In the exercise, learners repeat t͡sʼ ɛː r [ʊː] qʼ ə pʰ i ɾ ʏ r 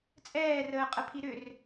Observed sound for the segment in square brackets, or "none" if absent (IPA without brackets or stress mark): əː